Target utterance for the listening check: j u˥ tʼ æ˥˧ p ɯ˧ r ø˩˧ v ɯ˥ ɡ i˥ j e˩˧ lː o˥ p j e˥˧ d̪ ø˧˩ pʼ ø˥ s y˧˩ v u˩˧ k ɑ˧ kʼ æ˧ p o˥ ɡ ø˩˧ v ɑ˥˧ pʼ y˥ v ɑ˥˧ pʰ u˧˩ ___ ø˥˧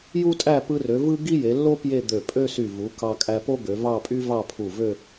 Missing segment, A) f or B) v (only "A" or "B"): B